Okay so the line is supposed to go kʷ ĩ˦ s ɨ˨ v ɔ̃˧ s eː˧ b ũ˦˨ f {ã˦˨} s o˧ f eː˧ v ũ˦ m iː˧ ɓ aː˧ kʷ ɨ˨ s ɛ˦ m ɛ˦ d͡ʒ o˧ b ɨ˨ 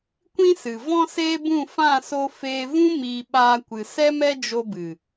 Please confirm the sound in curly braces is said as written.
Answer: yes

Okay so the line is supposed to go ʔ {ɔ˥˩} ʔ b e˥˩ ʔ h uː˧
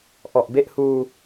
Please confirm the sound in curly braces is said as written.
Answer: no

